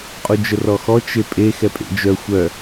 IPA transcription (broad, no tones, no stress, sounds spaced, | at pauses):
qʼ u d͡ʒ ə r ɔ x ɔ t͡ʃ e pʼ e x ɛ pʼ ḛ d͡ʒ œ xʷ œ